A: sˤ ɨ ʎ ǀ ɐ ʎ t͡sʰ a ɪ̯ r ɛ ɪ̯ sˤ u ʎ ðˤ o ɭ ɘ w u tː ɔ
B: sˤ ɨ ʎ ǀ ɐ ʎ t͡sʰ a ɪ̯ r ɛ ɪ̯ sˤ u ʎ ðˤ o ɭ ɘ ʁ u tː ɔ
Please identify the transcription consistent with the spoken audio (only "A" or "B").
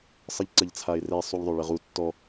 B